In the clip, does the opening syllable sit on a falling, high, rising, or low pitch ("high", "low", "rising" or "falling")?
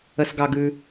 low